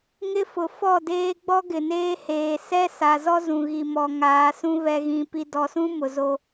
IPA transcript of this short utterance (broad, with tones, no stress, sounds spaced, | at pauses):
ŋ ɪ˦ f ʊ˨ f ɔ˦˨ d eː˦ ɡ͡b ɔ˦ ɡ ɪ˨ n eː˦ h eː˨ s ɛ˦ s a˨ z ɔ˦ z ũ˨ ɣ i˨ m ɔ˨ ŋ aː˨˦ s ũ˦ β ɛ˨ ɣ ĩ˨ p i˨ d ɔ˨ s ũ˦ m ʊ˨ z o˦